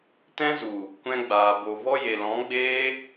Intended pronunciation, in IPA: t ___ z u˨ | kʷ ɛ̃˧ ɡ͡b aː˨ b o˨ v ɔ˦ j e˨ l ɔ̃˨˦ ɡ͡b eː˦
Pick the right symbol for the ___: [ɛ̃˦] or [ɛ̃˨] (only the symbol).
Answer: ɛ̃˦